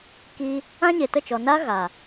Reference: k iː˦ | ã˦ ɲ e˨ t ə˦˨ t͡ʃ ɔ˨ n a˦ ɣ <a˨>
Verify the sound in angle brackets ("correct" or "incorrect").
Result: correct